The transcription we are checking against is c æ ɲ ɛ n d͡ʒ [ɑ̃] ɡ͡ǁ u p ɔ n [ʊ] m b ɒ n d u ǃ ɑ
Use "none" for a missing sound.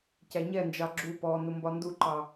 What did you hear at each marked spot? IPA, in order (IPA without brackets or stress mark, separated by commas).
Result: ɑ, ʊ